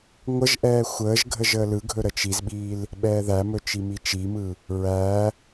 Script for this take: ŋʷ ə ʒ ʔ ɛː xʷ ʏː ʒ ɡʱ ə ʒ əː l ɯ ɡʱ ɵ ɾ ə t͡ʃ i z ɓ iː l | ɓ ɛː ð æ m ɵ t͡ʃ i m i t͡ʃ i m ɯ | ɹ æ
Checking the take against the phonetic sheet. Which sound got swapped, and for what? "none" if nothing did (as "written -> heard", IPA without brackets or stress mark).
ʏː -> əː